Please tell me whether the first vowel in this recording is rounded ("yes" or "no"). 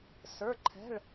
no